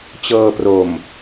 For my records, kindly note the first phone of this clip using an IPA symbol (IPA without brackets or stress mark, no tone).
t͡ɕ